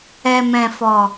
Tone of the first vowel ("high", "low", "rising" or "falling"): low